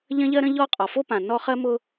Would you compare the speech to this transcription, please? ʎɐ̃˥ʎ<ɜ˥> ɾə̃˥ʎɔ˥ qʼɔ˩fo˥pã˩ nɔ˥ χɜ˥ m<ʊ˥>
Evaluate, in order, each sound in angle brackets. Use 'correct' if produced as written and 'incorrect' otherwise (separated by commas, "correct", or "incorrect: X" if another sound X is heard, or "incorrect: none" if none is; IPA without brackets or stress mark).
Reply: correct, correct